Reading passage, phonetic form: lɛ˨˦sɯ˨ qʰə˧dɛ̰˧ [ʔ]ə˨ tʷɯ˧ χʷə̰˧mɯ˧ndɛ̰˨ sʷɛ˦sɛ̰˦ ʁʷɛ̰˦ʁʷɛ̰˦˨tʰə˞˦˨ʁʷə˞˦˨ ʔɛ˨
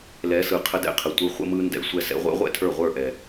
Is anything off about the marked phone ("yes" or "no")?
yes